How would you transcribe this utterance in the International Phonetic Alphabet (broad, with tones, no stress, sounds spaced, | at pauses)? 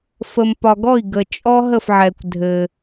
f ə˩ m p ɒ˩ ɡ ɔ˥˩ i̯ ɡ ə˩ t͡ʃʼ ɔ˥ ɦ ə˥˩ f ʕ ɛ˩ kʷ dʱ ɘ˩